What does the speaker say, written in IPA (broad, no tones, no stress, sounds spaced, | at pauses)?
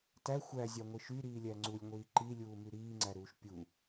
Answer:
t æ xʷ æ zʲ ɑ ŋʷ i ʃ y ɾ iː lʲ æ ŋ͡ǀ u lʲ ŋʷ iː ǃ i lʲ uː m y ɾ iː ŋ͡ǀ æ ɾ uː ʃ pʲ u